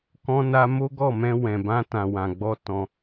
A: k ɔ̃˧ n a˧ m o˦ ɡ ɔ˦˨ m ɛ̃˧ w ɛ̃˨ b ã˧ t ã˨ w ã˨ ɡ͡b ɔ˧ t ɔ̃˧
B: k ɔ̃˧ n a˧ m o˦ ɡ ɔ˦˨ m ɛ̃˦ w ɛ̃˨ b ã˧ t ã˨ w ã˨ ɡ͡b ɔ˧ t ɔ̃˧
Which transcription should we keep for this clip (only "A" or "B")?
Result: A